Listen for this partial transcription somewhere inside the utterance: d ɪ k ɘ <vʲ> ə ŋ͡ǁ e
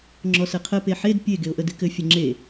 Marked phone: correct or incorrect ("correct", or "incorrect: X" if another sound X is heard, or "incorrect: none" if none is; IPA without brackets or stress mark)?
incorrect: fʲ